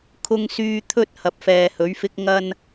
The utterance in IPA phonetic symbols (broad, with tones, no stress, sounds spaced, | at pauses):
kʰ ʊ˨ ŋ s yː˨ t̪ʰ ɵ˧ t̚ h ɐ˨ p̚ f ɛː˨ h ɵ˨˥ ɥ f ɪ˥ k̚ ŋ ɐ˥ n